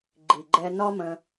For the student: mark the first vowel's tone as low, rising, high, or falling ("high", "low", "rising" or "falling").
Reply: low